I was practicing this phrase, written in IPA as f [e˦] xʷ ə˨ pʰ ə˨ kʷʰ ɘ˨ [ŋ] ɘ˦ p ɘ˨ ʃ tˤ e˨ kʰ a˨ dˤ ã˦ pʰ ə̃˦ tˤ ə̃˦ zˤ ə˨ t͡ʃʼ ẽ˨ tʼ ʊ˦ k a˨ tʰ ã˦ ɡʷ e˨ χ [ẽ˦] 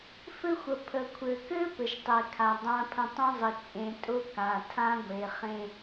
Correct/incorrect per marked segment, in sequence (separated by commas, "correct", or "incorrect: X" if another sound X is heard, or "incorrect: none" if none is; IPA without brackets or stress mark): incorrect: ɘ˦, incorrect: k, correct